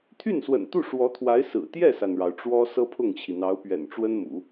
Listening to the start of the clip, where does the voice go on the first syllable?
falling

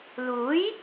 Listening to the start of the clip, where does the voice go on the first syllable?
rising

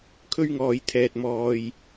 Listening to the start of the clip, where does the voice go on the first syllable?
high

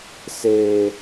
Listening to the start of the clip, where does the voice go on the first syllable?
high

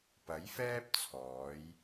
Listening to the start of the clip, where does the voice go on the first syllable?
rising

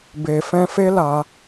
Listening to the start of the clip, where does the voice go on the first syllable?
low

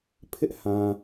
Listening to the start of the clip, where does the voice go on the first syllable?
high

